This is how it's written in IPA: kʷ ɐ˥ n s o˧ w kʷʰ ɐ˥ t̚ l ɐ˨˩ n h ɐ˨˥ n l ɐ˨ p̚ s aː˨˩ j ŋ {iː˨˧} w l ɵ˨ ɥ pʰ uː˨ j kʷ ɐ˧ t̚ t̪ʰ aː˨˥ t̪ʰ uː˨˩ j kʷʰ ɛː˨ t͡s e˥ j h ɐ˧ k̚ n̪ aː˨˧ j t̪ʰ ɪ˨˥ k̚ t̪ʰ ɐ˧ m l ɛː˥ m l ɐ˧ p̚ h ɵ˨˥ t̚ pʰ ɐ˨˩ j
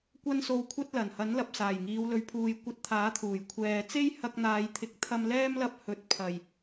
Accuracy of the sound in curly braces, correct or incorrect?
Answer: correct